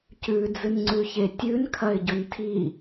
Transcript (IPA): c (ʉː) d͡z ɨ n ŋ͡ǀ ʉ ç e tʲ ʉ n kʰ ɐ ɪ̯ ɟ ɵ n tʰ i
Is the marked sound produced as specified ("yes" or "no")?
no